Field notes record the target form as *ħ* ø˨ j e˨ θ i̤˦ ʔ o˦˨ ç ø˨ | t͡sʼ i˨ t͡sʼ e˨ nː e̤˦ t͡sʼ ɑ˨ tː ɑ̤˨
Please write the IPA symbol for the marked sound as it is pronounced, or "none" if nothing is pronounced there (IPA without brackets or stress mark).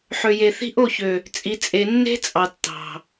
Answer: ħ